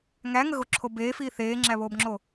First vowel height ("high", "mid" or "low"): low